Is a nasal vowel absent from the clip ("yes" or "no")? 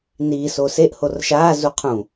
no